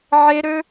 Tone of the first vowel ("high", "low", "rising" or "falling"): high